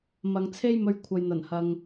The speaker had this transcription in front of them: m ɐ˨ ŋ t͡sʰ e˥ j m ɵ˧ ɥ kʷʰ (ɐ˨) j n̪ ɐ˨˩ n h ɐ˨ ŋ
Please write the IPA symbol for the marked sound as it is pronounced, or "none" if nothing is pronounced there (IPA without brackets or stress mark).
ɐ˨